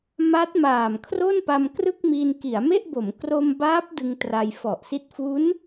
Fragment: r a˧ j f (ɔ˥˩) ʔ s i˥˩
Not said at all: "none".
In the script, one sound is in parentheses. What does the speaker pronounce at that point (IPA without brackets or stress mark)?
ɔ˨˩